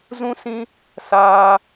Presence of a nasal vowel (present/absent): present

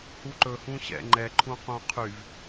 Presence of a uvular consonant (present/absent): present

